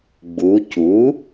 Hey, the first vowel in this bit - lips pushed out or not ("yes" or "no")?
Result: yes